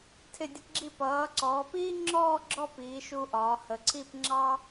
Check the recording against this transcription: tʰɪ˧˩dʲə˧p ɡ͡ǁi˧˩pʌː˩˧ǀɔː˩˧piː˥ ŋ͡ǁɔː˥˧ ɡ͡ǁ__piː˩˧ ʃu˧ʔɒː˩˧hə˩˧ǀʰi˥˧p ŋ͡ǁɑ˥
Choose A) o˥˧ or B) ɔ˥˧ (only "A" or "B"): B